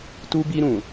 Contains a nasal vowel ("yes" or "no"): yes